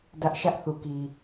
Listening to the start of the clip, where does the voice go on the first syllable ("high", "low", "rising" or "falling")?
high